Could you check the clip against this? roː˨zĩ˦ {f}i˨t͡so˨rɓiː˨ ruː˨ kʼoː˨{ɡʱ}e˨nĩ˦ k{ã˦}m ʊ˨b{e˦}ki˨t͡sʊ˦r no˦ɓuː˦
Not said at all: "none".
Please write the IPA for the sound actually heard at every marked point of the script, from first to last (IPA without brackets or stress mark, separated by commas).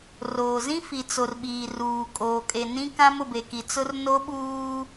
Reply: f, kʼ, ã˦, e˨